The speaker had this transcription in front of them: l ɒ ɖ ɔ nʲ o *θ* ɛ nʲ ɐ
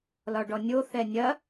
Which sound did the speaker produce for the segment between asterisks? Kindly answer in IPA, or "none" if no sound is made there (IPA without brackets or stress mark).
θ